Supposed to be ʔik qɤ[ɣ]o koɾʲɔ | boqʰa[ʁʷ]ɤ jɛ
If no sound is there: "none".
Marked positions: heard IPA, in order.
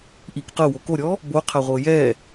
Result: w, ʁʷ

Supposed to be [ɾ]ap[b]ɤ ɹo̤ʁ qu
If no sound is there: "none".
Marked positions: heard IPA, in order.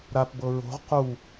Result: ɾ, b

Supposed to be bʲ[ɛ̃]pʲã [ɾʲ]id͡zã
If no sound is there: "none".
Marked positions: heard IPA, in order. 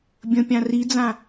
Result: ə̃, r

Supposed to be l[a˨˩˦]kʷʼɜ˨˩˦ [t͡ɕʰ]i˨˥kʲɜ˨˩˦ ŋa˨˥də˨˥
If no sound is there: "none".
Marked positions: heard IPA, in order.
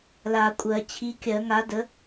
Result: a˨˩˦, t͡ɕʰ

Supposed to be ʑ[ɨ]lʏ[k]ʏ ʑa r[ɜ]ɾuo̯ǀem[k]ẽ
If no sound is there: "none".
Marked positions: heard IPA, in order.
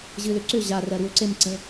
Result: ɨ, ǀ, ɜ, ǀ

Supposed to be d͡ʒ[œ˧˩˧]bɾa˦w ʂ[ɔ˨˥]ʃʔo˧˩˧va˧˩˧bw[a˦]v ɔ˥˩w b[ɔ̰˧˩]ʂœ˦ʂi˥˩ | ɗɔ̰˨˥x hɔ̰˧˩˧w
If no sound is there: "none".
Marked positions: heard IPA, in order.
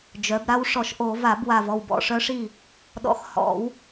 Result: œ˩˧, ɔ˧˩˧, a˧˩, ɔ̰˧˩

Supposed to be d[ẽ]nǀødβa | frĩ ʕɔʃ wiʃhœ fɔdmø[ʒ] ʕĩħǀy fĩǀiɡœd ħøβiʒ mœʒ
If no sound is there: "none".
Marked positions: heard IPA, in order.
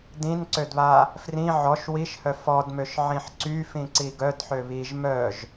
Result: ĩ, ʃ

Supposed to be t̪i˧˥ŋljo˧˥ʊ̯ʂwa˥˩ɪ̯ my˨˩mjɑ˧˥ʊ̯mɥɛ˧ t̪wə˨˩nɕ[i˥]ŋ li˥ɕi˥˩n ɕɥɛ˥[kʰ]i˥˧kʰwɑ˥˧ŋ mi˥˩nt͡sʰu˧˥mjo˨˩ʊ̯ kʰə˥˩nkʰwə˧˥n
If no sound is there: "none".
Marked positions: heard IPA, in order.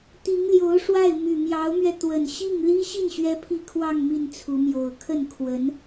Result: i˥˩, pʰ

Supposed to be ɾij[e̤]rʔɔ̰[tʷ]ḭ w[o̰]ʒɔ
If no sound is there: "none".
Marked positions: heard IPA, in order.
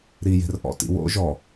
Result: e̤, t, o̰

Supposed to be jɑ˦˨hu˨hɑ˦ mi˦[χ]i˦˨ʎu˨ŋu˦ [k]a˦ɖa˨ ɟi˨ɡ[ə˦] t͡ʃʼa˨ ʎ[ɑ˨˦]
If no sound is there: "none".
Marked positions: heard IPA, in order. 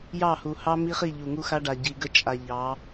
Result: χ, x, ə˦, ɑ˨˦

